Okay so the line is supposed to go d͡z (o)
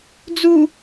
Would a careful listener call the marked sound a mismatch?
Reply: yes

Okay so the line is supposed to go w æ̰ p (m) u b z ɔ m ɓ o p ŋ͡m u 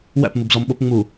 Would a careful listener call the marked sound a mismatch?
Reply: no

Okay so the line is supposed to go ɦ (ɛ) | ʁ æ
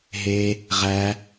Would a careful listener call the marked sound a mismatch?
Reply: yes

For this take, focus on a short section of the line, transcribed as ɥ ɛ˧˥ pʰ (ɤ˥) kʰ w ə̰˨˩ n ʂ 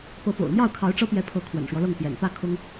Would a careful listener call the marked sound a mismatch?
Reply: yes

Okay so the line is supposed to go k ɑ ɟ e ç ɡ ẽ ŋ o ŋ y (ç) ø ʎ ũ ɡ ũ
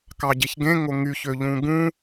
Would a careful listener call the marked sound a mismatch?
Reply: no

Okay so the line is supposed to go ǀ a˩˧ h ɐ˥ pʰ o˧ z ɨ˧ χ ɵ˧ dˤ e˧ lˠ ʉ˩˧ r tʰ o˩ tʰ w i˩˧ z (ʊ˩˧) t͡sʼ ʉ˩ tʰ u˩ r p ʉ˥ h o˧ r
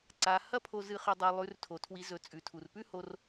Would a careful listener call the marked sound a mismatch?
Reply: yes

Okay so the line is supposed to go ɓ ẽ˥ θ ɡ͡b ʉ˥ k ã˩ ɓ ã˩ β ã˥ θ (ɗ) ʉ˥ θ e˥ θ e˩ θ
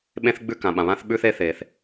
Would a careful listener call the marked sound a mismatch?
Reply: yes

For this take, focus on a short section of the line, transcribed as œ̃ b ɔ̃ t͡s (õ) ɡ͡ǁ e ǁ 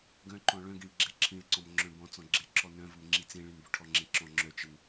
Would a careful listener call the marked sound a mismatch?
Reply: yes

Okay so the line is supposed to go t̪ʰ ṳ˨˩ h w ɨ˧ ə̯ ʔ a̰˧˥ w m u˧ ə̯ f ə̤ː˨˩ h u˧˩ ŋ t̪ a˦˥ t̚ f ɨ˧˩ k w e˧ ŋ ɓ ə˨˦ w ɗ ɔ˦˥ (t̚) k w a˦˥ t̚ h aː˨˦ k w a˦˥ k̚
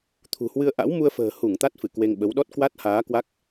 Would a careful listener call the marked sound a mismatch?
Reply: no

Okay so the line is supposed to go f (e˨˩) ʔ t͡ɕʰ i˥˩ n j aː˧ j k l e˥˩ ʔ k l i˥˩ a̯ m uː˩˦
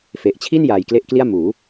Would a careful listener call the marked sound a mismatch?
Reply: no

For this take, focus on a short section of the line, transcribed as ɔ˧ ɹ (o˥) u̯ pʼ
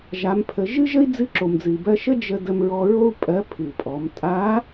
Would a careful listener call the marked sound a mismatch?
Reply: no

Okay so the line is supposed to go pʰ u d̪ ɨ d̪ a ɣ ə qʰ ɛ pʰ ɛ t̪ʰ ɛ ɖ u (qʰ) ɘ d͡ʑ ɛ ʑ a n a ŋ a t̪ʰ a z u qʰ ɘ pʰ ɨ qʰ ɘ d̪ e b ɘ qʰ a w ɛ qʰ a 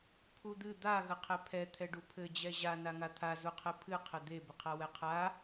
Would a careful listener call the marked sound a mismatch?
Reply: yes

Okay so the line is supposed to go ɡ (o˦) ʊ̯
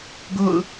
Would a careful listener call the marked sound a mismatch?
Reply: yes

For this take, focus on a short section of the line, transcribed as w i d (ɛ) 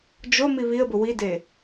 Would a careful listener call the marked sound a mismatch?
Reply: yes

